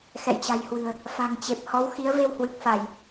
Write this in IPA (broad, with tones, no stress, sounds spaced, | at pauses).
x ɛ̰˧˨ j t͡ɕ a̤˨˩ j h w ɨ̤˨˩ ə̯ | f a̤˨˩ ŋ t͡ɕ e˨˩ p̚ h ɔ˨˦ w x i˨˦ ə̯ v e˧ w h w ɨ˨˩ k̚ f a˧˩˨ j